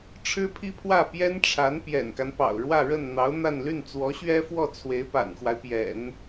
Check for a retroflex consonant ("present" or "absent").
present